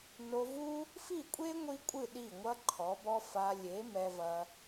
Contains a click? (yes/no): yes